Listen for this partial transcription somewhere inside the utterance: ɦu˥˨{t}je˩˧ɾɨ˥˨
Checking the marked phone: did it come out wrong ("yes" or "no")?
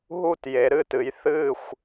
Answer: no